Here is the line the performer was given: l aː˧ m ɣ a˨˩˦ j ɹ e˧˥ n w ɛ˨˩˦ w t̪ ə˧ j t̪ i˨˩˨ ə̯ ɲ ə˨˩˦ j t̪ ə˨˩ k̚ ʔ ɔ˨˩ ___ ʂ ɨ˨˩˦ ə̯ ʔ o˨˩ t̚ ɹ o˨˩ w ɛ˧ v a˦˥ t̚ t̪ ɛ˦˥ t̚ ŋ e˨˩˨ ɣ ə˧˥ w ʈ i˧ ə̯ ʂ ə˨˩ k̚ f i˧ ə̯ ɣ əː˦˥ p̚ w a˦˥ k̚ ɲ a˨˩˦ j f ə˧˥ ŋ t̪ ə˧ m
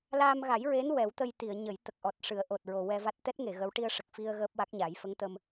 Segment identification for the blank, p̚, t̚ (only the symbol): t̚